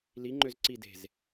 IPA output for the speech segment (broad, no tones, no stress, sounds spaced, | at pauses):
l i ŋ͡ǃ ø z ǀ i d e̤ z